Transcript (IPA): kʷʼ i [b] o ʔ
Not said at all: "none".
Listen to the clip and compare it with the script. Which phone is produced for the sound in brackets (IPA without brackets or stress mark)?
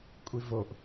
v